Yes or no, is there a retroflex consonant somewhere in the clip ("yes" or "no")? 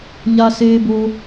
no